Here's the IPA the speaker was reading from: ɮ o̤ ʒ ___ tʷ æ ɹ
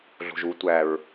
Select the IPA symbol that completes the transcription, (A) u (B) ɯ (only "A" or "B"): A